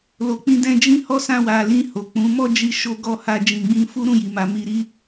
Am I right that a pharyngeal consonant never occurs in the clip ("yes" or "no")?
yes